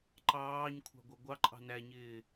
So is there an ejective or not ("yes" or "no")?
yes